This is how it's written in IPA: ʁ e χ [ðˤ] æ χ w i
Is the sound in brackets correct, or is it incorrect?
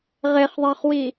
correct